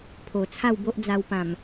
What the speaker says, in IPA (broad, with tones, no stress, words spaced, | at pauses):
pʰo˨˩t͡sʰa˥˧wbo˦ʔ d͡za˧wpã˨˩m